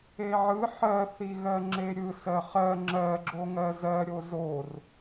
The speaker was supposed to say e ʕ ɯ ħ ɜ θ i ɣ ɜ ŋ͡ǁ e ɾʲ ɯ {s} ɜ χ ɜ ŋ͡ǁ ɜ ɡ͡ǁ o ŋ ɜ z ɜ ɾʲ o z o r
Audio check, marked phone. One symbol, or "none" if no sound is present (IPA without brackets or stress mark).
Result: s